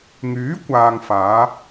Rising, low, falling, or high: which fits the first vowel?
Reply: rising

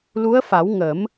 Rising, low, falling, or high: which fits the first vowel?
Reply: rising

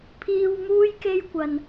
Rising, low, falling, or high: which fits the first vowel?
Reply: low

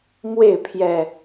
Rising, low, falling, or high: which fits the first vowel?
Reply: falling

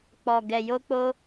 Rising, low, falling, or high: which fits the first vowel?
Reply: low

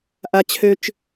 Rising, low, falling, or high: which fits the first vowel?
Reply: high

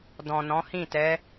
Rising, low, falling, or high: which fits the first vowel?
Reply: low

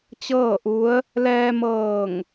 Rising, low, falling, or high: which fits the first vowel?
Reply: falling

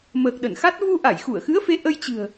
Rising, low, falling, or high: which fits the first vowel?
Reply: low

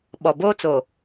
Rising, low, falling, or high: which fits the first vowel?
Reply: low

